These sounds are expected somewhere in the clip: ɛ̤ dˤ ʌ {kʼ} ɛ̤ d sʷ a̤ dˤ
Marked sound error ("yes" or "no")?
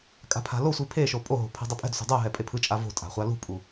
yes